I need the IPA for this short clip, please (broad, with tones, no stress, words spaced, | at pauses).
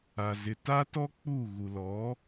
a˨ zɪ˨ta˦tɔ˦ k͡pu˦˨ ɣu˨lɔ˨˦